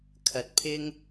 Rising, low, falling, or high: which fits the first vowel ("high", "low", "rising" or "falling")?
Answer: rising